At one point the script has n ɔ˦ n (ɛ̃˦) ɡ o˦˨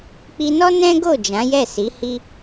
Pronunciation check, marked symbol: correct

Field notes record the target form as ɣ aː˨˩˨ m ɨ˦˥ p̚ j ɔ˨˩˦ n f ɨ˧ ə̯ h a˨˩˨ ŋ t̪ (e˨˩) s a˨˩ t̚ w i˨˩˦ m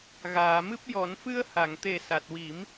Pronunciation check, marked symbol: correct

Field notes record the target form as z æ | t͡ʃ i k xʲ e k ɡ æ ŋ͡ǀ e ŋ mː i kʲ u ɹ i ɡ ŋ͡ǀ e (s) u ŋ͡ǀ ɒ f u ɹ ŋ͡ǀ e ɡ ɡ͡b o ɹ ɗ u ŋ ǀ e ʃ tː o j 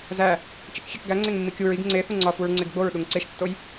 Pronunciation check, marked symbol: incorrect: θ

